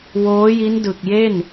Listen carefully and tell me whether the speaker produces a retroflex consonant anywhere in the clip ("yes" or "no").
no